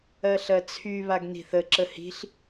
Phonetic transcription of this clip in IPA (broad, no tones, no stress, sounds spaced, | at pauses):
ɜ ɬ ɜ t͡sʰ y β a ɡ n i̤ θ ə ǁ ə h i̤ ɬ